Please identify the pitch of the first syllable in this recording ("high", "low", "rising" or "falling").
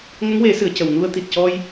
rising